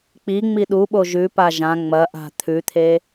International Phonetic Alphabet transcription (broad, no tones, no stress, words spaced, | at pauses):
k͡piŋ͡mi ɗuɓo ʒʉpa ʒã ŋ͡mɐʔa̤ t̪ʰʉt̪ʰe